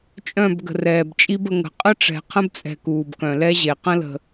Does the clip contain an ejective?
yes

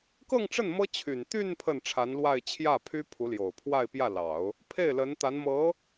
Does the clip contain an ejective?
no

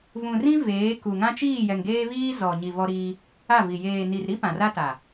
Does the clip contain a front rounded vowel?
no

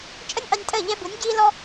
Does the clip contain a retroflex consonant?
no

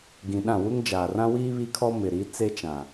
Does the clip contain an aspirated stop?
yes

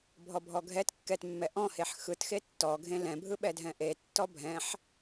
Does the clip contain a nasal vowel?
yes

